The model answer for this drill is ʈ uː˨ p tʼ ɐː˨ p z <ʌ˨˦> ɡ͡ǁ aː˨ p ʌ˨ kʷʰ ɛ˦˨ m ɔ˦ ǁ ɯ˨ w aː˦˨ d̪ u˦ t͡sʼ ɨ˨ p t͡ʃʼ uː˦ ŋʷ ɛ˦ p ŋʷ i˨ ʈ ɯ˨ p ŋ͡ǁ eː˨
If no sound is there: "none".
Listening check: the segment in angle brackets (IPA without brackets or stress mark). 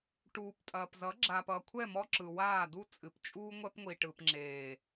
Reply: ʌ˨˦